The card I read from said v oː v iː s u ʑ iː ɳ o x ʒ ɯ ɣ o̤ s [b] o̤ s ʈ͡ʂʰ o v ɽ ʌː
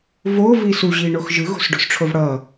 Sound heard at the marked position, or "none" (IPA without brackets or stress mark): ɖ